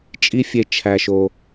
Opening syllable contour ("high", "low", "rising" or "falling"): high